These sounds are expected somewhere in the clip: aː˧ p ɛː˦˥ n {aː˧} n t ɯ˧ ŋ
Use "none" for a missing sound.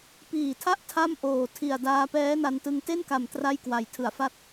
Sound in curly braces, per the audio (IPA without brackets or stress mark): a˧